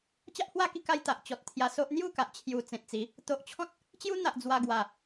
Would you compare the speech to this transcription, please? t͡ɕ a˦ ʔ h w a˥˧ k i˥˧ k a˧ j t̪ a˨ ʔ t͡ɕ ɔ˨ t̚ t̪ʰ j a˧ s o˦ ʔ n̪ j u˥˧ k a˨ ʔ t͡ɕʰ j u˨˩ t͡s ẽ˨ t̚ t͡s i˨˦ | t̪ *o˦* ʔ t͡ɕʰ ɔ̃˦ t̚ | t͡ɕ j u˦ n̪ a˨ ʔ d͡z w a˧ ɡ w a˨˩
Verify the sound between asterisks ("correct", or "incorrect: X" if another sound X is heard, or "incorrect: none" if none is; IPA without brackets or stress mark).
incorrect: o˨